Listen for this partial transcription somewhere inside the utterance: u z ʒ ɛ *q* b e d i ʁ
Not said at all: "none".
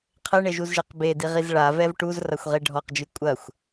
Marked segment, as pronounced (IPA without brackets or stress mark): q